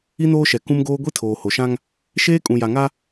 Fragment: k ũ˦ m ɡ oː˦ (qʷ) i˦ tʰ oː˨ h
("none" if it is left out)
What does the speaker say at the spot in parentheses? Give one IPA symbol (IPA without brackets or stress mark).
ɡʷ